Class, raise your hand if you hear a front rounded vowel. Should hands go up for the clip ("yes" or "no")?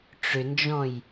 yes